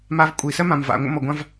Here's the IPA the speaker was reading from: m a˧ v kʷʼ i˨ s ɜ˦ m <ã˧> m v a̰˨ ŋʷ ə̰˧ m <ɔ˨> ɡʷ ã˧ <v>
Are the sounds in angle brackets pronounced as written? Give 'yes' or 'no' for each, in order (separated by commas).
no, yes, yes